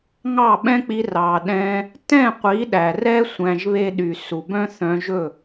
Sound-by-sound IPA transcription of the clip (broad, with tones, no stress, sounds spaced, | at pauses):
ŋ ɑ˦˨ ɓ ɛ̃˦ k͡p i˧ r ɑ˨ ɗ ɛ̃˧ | t ɛ̃˦˨ qʷ i˨˦ ɗ æ˨ r ɛ˦ sʷ æ̃˧ ʒ β e˦ ɗ y˨ s u˨ b œ̃˦ θ œ̃˧ ʒ ɵ˦˨